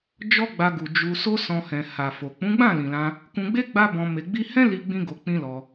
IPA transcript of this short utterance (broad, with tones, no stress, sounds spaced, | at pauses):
d͡ʒ ɔ˦ ɡ͡b a˧ ɡ u˨ d͡ʒ u˧ s o˦ s ɔ̃˧ h ɛ̃˨ h a˨ f o˨ k͡p ũ˨˦ ɡ͡b ã˦˨ l ĩ˨ l ã˧ | k ũ˧ ɡ͡b e˦ ɡ͡b a˦ b ɔ̃˧ m e˧ ɡ͡b i˦ h ɛ̃˦ l i˧ ɡ͡b ĩ˦ ɡ o˧ k͡p ĩ˦ l ɔ˧